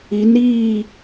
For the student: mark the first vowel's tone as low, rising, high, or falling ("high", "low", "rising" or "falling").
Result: rising